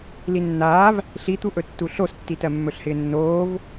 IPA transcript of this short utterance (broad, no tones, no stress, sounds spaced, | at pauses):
l i nː aː v | ɬ i t̪ u ʔ ɵ tː u ɬ o s tː i t ɜ mː ɵ ɬ h ɪː nː oː v